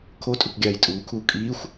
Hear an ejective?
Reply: yes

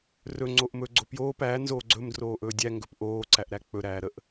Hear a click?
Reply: yes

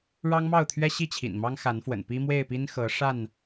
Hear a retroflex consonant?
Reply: yes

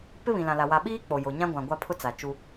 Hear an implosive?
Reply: yes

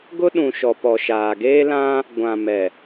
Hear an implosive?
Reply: yes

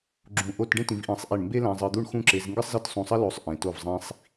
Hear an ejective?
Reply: no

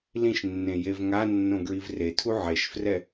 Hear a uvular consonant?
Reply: no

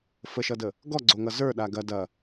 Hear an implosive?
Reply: yes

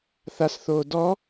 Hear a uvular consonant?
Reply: no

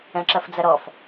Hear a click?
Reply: yes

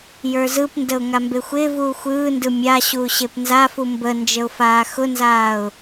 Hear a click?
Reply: no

